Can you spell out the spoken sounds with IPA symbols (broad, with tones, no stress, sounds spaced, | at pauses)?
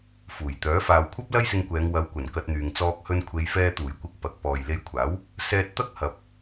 f uː˨˩ j t̪ œː˨˥ f aː˨ w kʷʰ ɐ˥ p̚ l ɐ˥ j s ɪ˧ ŋ kʷ ɛː˨˧ ŋ w ɐ˨˧ w kʷ ɐ˨˩ n k ɐ˧ t̚ n̪ yː˨ ŋ t͡s ɔː˧ k̚ h ɵ˧ n kʷʰ e˨˧ j f ɛː˧ t̪ uː˨˩ j kʷ ɪ˧ k̚ p ɐ˨˥ k̚ p ɔː˨ j l e˧ j kʷʰ aː˨˥ w | s ɛː˧ t̚ t̪ ɐ˥ k̚ h ɐ˨ p̚